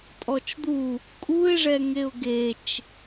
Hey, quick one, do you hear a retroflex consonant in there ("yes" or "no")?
yes